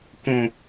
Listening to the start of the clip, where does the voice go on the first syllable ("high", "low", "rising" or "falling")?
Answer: high